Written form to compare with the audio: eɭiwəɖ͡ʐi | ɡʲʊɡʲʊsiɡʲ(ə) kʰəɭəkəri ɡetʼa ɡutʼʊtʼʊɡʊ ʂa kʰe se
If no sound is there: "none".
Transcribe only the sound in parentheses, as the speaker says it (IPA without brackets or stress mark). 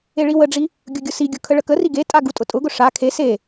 ʊ